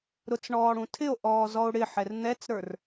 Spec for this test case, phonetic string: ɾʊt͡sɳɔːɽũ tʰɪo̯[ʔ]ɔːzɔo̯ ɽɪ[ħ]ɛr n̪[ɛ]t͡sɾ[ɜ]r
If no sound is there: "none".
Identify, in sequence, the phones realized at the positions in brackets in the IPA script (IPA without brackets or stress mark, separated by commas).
ʔ, ħ, ɛ, ə˞